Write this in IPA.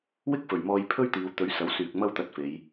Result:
w ɪ˥ k̚ f ɵ˨˩ ɥ m ɔː˧ j pʰ ɵ˥ ɥ t̪ iː˨˧ w t̪ ɵ˨˥ ɥ s ɐ˨˥ w s yː˨ k̚ m ɐ˥ w t̪ ɐ˧ t̚ f e˨˧ j

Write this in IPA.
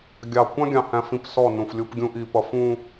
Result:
ɡʲ ɑ˨ kʷ ɑ̃˦ ɡʲ ɑ̃˨ h æ̃˦ f ĩ˦ p s ɔ˦˨ n ũ˨ f lʲ u˦ p ɡʲ ũ˦ ʔ i˨ p ʌ˨ f ũ˨

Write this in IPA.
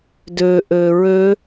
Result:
d ø ʔ ø ɹ ø

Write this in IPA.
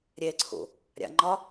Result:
ɾʲ e ǀʰ ṵ | ɾʲ a̰ ŋ͡ǃ ɒ

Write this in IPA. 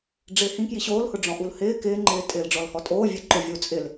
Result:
ɖ͡ʐ ɪː h ĩ k j i ɕ oː l h ʊ ɖ͡ʐ ɔ̃ ʔ u l h ɪː k ɪː ŋ͡ǃ ɪː tʼ ɪː l ɖ͡ʐ ɔ l h ɔ tʼ oː vʲ e ǃ ʊ vʲ u t͡sʼ ɪ l

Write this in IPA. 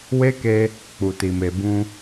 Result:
w e˦ k e˧ | k͡p u˨ t i˨ m e˨ b ũ˧

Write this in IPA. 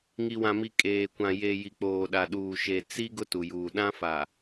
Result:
ŋ i˨ w ã˨ m i˨ kʼ eː˨ kʷ ã˨ j e˨ j i˨ k͡p oː˨ ɗ a˨ ɗ uː˨ ʃ e˨ t͡s i˦ ɡ ʊ˦ t u˨ j uː˨ ɗ ã˦ f a˨

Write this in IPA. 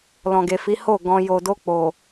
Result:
l ɔ̃˨ ɡ e˨ f i˨˦ h o˦˨ ɡ ɔ̃˧ j o˨ d o˧ k͡p o˨

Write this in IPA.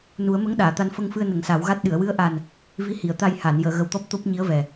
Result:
n u˨˩˦ ə̯ m ə˧˥ ŋ ɗ aː˨˩˨ t̪ a˧ n f ə˧ ŋ f ɨ˧ ə̯ n ə˨˩˦ ŋ s a˨˩˦ w ɣ a˦˥ t̚ ɗ ɨ˨˩˨ ə̯ w ɨ˧˥ ə̯ ʔ a˨˩ n | v i˧˥ h i˨˩˨ ə̯ t̪ a˧ j h a˨˩˨ n j əː˨˩˨ ɣ ə˨˩ w t̪ ɔ˦˥ p̚ t̪ o˦˥ p̚ ɲ i˧˥ ə̯ v ɛ˨˩

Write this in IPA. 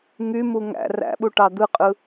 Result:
ŋ y m u ŋ æ̰ r æ̰ ɓ u ʈ ɑ d̪ ɯ qʼ ɯ

